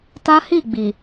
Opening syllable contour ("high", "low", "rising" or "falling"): high